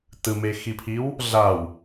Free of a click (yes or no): yes